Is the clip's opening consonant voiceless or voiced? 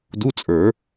voiced